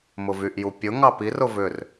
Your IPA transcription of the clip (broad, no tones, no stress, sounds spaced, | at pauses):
m ʊ v y ʔ j u pʲ ʊ ŋ ɑ p i r ʊ v ʏ r